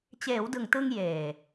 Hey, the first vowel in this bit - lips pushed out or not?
no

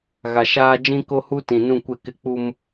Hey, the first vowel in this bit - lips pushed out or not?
no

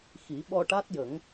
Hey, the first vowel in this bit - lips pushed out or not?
no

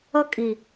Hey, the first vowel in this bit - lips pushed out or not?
no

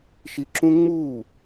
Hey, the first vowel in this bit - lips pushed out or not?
no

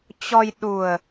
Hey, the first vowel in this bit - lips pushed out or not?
yes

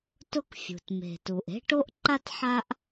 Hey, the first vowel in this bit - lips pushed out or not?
yes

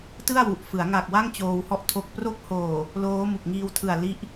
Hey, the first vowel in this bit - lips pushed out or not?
no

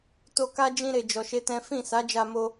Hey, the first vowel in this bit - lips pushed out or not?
yes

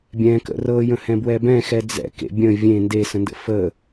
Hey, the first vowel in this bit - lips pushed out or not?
no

